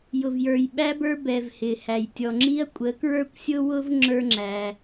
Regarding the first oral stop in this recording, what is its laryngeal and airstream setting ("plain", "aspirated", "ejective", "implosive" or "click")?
implosive